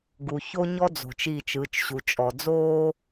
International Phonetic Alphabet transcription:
ɡ u˨ ç o˦ ɲ ɔ˦ d͡z o̤˨ t͡ʃ i˦˨ t͡ʃ ɯ˨˦ t͡ʃ ɕ u˨ t͡ʃʼ ɔ˨ d͡z oː˦

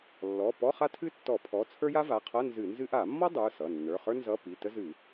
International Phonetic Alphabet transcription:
lː ɔ˩˧˩ p ɔ˧˥˧ χ a˥ tʰ ɨ˥ tː ɔ˧˩˧ pʰ ɔ˩˧˩ t͡sʰ ə˞˥ j a˥ v a˩˧˩ qʰ ʌ˧˥˧ n z ɨ˧˩˧ n z ɨ˥ ʔ a˧˩˧ mː ɔ˥ dˤ ə˞˩˧˩ s ʌ˩˧˩ nː ə˞˩˧˩ χ ə˞˥ n z ʌ˧˥˧ p i˩˧˩ t ə˥ z ɨ˧˩˧

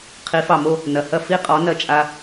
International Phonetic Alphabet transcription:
qʰ i˩˥ f ɑ˩ m o˥˨ | n ɐ˩ h ɐ˥˨ f i˥˨ qʼ ɔ˩˥ n ɐ˧ t͡ʃʼ a˧

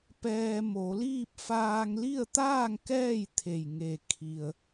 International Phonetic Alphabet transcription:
p ɛː˧ m o˩˧ l iː˥˨ p̚ f aː˧ ŋ l i˥˨ ə̯ t̪ aː˥˨ ŋ k ɛː˥˨ j t̪ʰ e˩ j ŋ e˩ kʰ i˩ ə̯

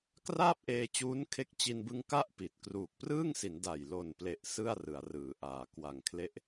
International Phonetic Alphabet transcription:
k r aː˥˩ p̚ ʔ eː˧ t͡ɕ uː˦˥ n kʰ e˥˩ k̚ t͡ɕ i˧ n b ɯ˧ ŋ k a˥˩ ʔ p i˨˩ t̚ k r uː˨˩ k̚ p r ɯː˥˩ ŋ s i˩˦ n d a˨˩ j l o˨˩ n p l e˨˩ ʔ s ɯ˥˩ a̯ r ɯ˩˦ a̯ r ɯː˩˦ ʔ aː˩˦ k w a˨˩ ŋ kʰ l e˦˥ ʔ

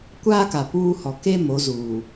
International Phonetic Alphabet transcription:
kʷ aː˦ k a˨ p uː˦ h ɔ˨ k e˦ m o˨˦ z uː˨

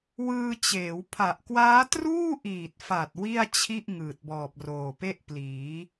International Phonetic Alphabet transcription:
w ɯː˧ t͡ɕ eː˩˦ w pʰ a˨˩ ʔ k w aː˦˥ t r uː˥˩ ʔ iː˨˩ t̚ f a˨˩ t̚ w i˥˩ a̯ t͡ɕʰ i˥˩ ʔ ŋ ɯː˨˩ t̚ b ɔː˨˩ p̚ r oː˨˩ p e˥˩ ʔ p l iː˩˦

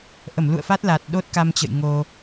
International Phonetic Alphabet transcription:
ʔ ə˧˩ m l ṵ˧˨ ə̯ f a˦˥ t̚ l a˨˩ t̚ ɗ o˦˥ t̚ k a˧ m t͡ɕ ə̰˧˨ j ŋ o˧

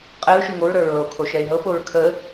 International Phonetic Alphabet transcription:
qʼ ɛ ɹ ʃ ʉ ŋ o ɹ ɾ ə˞ ɹ ɤ o̯ kʰ o ʃ ɛ e̯ ɦ ɤ p o ɹ kʰ ə

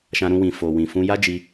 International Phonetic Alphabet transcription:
ʃ ã˧ ɾ ũ˧ w ĩ˨ f o˨ w ĩ˨ f ũ˧ j a˦ d͡ʒ i˧

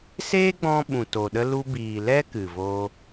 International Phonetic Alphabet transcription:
s eː˦ ɡ͡b ɔ̃˧ ɓ ũ˨ t o˨ ɗ ə˧ l u˧ b iː˨ l ɛ˦ k ɨ˨ v oː˧

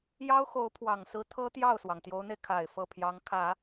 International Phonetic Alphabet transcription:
j ɑ˥ ʊ̯ x o˧˥ ʊ̯ pʰ w ɑ˨˩ ŋ s ɹ̩˧˥ t̪ʰ ɤ˥ t̪ j ɑ˥˩ ʊ̯ s w ɑ˩ ŋ t̪ j o˧˥ ʊ̯ n̪ e˧ ɪ̯ kʰ a˨˩ ɪ̯ f ɤ˥˩ pʰ j ɑ˧˥ ŋ kʰ ä˨˩˦

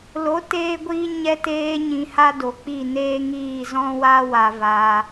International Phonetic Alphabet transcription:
l o˨˦ t eː˧ ɡʷ iː˧ ɲ ɛ˧ t eː˧ ɲ ĩ˧ h a˦ d o˨ k͡p i˦˨ n eː˦ ŋ iː˦˨ z ɔ̃˦ w a˦ w a˧ v aː˧

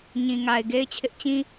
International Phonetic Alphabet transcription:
ɲ ĩ˨ ŋ a˨ ɪ̯ ɡ e˦ ɪ̯ t͡ɕʰ ɪ˦ ʔ t͡ɕ ĩ˦

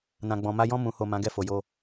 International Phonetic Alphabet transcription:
n ã˨ ɡ͡b ɔ̃˨ m a˧ j ɔ̃˧ m ũ˨ h o˨ m ã˨˦ ɡ ɛ˦˨ f o˨ j o˧

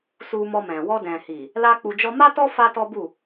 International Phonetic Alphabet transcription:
s u˧ m ɔ˧ m ɛ̃˨ w ɔ˧ d ɛ̃˨ h i˨ | l a˦ k͡p u˧ d͡ʒ ɔ˦ m a˦ t ɔ˦ f a˦ t ɔ˦ b u˦˨

